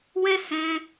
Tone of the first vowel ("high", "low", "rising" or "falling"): high